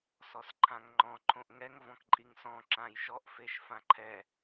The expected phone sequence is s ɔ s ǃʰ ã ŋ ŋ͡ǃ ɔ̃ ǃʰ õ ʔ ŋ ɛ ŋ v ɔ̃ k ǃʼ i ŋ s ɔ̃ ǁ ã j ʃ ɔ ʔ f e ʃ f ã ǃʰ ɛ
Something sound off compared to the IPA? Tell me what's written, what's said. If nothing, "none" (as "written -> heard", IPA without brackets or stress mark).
none